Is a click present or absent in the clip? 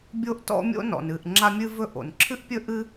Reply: present